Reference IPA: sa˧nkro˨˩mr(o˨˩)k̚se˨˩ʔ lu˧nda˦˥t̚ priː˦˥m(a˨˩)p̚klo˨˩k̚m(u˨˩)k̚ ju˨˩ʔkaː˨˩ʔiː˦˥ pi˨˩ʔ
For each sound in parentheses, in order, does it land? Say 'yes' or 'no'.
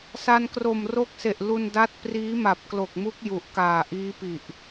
no, yes, no

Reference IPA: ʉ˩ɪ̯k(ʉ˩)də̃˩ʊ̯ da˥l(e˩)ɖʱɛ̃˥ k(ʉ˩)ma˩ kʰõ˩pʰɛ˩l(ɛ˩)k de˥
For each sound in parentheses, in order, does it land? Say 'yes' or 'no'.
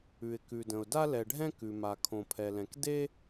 yes, no, yes, no

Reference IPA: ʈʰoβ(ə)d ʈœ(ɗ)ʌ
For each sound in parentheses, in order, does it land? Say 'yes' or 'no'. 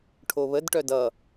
yes, no

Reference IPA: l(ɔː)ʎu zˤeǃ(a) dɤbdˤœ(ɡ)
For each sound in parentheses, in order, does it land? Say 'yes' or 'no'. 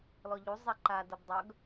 no, yes, yes

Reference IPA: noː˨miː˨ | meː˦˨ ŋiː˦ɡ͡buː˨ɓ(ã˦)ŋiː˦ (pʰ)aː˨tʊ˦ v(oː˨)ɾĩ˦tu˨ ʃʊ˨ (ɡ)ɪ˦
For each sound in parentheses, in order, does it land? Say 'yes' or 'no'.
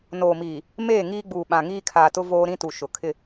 no, no, no, no

